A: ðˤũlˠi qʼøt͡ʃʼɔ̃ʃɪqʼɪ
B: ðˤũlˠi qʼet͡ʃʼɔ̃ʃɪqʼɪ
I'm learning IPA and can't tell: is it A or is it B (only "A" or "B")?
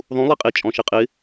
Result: B